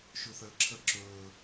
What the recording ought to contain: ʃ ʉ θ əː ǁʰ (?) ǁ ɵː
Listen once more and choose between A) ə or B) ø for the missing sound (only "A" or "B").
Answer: A